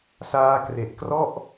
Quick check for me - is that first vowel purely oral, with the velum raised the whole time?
yes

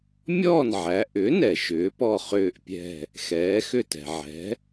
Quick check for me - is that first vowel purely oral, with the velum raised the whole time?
yes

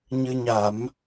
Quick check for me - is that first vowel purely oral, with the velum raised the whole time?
yes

